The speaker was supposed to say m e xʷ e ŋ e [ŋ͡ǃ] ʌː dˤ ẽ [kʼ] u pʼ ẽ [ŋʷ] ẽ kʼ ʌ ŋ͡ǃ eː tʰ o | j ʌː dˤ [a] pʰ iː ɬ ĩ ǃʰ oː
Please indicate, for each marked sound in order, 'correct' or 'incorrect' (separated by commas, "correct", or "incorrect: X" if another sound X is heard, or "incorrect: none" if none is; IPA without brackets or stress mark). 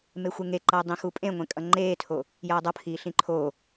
incorrect: ǃ, incorrect: x, correct, incorrect: ʌ